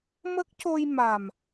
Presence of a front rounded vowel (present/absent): absent